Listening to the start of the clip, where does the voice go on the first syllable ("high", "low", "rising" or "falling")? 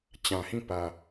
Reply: low